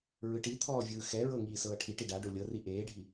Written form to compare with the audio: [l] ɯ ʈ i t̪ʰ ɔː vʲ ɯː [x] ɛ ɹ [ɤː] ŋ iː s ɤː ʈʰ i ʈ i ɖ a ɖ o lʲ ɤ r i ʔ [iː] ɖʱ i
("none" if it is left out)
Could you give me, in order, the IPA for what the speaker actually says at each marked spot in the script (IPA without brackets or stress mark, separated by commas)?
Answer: ɹ, x, ɤ, eː